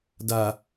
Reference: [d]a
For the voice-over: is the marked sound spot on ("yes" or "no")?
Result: yes